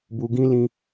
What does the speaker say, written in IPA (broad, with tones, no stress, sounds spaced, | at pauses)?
b u˧ ɡ ĩ˦ l ĩ˧